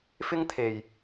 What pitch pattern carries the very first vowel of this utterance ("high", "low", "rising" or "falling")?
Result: high